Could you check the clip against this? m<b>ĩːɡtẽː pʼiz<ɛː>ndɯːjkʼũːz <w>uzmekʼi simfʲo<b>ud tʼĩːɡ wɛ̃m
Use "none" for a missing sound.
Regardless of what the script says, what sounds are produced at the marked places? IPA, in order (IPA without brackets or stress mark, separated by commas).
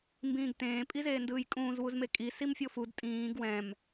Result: b, eː, w, f